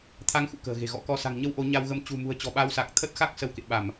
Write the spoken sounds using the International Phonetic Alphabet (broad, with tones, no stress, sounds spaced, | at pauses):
t̪ʰ a˨˦ ŋ x ṵ˧˨ k ə̤ː˨˩ ɣ e̤˨˩ ɣ ɔ̰˧˥ k ɔ˧ s a̤˨˩ ŋ ɲ ə˧ w ʔ o˨˦ ɲ a˧ w ɣ ə˧ m t͡ɕ ṳ˨˩ m ṳ˨˩ ə̯ t͡ɕ ɔ̤˨˩ ɓ a˧ w s a˨˩ k̚ t̪ʰ əː˦˥ t̚ x a˦˥ k̚ s ə˨˦ w k ḛ˧˨ ɓ a˧˩˨ m